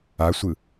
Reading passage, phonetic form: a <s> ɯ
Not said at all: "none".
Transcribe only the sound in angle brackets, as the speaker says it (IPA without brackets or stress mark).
sʷ